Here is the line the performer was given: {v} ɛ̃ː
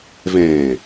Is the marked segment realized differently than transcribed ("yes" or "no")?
no